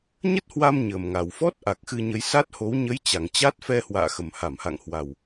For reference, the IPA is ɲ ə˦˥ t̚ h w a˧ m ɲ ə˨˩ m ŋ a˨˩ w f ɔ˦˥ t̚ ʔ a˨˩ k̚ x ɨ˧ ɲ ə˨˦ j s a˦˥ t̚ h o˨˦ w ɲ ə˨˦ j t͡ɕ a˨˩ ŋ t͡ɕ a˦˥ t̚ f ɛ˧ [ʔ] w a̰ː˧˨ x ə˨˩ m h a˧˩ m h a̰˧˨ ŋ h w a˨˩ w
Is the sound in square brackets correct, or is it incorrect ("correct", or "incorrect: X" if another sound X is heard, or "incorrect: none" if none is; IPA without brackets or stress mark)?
incorrect: h